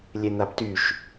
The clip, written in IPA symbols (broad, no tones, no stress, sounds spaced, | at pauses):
lʲ e n̪ a b t y ʃ